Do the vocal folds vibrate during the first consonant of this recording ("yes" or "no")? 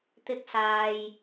no